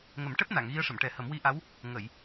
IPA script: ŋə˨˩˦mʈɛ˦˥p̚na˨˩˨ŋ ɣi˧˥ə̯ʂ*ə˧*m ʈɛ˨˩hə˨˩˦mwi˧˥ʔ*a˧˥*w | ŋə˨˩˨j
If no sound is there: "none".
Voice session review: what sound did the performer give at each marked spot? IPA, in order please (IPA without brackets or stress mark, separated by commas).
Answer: ə˨˩˨, a˧˥